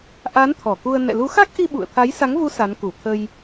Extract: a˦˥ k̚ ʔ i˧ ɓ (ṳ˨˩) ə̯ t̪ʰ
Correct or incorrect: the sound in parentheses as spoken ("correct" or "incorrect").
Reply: incorrect